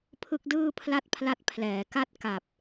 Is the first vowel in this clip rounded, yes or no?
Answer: no